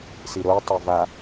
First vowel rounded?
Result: no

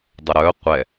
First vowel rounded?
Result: no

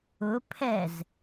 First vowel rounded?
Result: yes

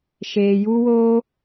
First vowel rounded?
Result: no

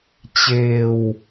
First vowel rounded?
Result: no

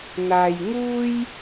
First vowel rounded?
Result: no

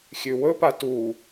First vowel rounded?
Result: yes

